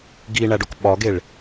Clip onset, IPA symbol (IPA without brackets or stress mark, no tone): ɡ